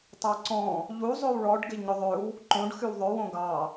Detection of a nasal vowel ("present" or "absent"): present